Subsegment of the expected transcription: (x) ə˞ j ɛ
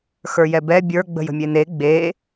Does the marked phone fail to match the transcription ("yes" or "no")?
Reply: no